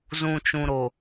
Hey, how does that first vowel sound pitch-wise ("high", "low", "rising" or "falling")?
low